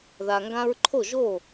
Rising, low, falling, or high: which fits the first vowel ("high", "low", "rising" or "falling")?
low